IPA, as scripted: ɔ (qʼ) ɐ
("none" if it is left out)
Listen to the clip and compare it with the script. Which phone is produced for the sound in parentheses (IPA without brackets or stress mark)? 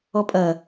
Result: pʼ